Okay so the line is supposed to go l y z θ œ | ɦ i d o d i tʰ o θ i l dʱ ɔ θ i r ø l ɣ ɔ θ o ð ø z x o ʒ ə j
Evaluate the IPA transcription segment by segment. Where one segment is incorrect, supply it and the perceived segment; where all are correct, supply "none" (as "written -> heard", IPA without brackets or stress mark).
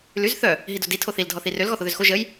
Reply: none